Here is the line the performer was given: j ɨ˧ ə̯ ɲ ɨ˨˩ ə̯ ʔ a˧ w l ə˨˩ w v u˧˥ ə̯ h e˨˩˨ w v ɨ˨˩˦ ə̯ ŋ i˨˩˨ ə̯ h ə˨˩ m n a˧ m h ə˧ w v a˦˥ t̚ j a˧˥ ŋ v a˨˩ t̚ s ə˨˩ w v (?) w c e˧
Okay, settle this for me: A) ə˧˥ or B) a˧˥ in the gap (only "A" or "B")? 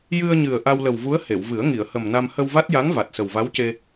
B